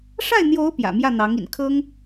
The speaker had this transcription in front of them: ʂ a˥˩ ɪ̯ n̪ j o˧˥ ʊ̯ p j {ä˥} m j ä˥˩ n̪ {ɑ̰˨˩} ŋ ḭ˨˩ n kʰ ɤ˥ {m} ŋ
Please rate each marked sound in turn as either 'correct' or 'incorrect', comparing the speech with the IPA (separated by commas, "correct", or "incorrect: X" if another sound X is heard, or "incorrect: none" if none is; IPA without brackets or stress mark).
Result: incorrect: ä̰˨˩, incorrect: ɑ˧˥, incorrect: none